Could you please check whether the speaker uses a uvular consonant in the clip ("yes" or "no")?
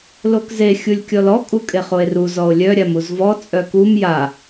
yes